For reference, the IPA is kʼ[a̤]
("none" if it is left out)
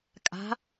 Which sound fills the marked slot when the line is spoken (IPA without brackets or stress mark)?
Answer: a̤